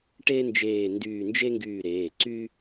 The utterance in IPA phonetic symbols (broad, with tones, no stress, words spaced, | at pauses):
ʈeː˥nd͡ʒeː˦˨ndyː˦˨ nd͡ʒe˥ŋɡyː˦˨ ɾeː˩˧˩ǀy˥